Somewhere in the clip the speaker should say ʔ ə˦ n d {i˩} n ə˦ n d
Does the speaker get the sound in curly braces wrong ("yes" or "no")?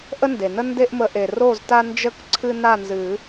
yes